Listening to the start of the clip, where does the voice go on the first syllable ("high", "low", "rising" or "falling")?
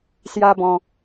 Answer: high